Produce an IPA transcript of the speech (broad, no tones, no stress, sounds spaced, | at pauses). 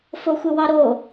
f o xʷ ɨ w ɑ ɾ o